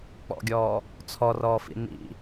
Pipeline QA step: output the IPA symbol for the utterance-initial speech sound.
k͡p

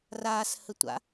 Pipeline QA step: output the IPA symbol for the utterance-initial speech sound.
r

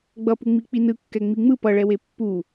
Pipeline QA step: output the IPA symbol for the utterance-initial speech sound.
ɡ͡b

